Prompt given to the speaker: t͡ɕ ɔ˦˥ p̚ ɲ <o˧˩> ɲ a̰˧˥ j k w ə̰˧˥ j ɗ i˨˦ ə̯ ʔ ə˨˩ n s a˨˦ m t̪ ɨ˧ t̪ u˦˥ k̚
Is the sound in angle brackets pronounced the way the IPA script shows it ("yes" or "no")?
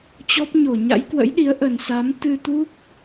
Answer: yes